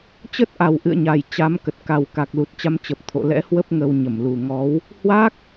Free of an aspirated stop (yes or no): no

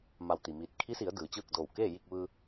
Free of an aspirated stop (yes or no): no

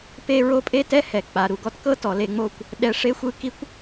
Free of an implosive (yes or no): no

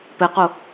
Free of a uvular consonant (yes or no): no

